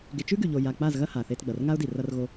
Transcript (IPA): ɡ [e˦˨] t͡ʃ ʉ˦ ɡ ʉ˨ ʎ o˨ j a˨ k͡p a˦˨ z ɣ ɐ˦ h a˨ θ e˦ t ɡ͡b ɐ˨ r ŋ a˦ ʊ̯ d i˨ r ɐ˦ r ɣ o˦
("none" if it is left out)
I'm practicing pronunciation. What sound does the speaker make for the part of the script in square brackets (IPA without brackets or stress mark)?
e˨